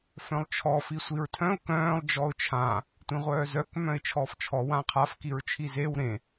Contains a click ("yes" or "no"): no